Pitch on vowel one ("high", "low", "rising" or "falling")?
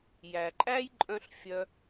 low